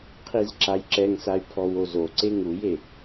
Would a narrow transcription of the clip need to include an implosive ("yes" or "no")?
no